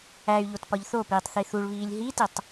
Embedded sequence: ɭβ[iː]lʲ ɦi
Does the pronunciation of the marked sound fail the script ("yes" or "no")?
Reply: no